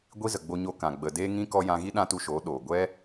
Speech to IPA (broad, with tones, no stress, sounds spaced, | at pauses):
ɡʷ i˦ z ə˨ ɡ͡b o˧ ɲ o˧ k ã˨ ɡ͡b ə˨ d eː˧ ŋ ĩ˧ k ɔ˧ j ã˧ ɣ i˦ ɗ ã˦ t u˧ ʃ oː˨˦ ɗ oː˨ ɡʷ ɛ˦